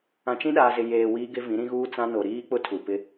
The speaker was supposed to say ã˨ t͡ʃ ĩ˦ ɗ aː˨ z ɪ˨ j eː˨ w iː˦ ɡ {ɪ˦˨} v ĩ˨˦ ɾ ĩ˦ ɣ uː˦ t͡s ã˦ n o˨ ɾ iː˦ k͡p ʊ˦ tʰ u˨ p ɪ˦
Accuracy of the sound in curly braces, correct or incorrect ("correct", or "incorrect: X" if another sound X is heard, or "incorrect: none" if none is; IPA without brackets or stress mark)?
incorrect: ɪ˦